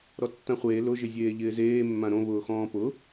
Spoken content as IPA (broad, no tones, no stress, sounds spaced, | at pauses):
ɾ ɔ tː ã χʷ eː l ʊ ʒ ɪ zʲ eː ʎ ɪː z eː mː ã ɾ õ β ʊː x ɔ̃ː p ʊ